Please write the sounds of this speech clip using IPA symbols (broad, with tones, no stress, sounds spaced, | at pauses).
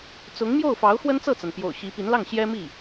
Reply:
t͡s ʊ˧˥ ŋ m j o˥˩ ʊ̯ f ɑ˧˥ ʊ̯ x w ə˥ n t͡s ɤ˥˩ t͡s a˩ n p j o̰˨˩ ʊ̯ ɕ i˧˥ p i˧˥ n l ɑ˥˩ ŋ ɕ j ɛ˥ m i˥˩